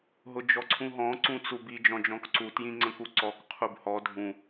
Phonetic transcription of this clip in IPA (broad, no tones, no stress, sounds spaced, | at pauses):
ɦ ʊ d͡ʒ ɔ ǀʰ ũ ɦ ɔ̃ ǀ ũ t͡s u b i d͡ʒ ɔ̃ d͡ʒ ɔ̃ k ǀ u t j ĩ ŋ͡ǀ ə̃ k u ǀ ɔ k qʰ u b h ɔ dʱ ũ